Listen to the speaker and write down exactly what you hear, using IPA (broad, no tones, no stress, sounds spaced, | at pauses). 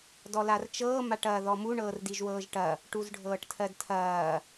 d ɔ l a r t͡ʃ ɤː m a ʈ ɐː ð ɔ m u ɳ ɤː r d i ʒ w ɤː ʒ ʈ ɐ | ʈ u z ɖʱ ɤː ʈ tʰ ɜ d tʰ ɐː